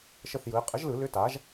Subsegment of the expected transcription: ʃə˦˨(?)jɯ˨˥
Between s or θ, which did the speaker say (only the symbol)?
θ